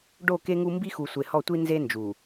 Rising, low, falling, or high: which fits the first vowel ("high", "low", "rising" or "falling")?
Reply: falling